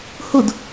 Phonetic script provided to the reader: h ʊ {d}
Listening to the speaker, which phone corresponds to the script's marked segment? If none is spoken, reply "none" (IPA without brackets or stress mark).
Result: d